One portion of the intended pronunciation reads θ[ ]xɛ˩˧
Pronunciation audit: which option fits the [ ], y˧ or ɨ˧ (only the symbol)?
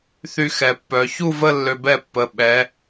y˧